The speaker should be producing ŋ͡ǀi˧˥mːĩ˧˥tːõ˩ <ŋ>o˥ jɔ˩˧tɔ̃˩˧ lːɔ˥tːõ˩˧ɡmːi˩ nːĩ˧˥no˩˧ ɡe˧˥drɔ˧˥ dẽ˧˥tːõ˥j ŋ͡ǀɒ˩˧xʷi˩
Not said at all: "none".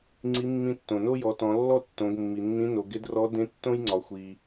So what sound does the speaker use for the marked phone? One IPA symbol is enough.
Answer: n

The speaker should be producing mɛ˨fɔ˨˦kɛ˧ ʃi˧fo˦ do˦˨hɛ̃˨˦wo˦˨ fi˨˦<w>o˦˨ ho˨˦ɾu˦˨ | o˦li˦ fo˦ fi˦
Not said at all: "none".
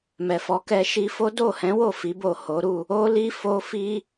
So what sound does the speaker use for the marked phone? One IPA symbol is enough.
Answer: b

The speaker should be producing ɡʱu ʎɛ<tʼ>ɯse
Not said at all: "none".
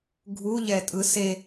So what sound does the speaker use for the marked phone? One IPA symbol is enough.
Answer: tʼ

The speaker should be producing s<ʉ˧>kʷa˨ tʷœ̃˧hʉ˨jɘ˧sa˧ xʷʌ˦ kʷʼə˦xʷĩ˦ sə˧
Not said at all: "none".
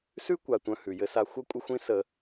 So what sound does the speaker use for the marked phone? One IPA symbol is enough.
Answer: ʉ˦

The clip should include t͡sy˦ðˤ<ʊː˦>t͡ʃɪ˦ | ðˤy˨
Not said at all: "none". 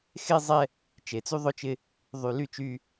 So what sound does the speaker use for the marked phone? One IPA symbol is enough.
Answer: ʊ˦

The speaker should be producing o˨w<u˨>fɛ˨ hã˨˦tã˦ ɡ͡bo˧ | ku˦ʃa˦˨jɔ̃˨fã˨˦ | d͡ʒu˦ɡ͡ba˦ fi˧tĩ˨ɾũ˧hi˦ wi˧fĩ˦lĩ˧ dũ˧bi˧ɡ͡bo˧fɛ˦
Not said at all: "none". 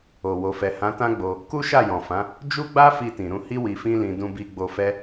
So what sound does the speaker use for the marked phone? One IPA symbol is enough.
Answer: o˨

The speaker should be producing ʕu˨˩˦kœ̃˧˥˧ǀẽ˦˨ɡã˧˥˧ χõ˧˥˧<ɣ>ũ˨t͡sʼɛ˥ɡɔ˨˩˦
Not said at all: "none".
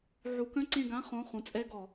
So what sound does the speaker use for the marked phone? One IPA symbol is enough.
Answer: χ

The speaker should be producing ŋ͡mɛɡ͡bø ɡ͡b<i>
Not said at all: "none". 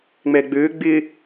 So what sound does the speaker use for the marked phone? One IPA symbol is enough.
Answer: ɪ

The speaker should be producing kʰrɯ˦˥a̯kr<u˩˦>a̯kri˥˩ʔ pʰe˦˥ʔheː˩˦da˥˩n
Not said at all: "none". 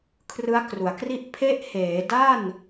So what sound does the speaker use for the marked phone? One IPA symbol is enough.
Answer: u˩˦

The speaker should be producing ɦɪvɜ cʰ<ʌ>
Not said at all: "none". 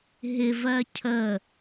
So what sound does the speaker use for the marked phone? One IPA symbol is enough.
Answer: ə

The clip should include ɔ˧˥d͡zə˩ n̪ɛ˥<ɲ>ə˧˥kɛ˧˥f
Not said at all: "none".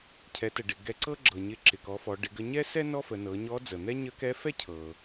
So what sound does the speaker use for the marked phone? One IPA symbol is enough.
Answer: ɲ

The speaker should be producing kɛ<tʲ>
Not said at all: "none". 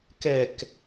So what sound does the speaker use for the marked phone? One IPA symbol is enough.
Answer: k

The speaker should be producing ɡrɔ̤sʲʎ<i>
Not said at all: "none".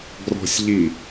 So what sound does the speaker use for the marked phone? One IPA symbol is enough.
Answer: i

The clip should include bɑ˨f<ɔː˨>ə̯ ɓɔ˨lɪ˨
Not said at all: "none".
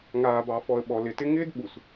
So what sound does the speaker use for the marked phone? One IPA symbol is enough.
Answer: ɔ˨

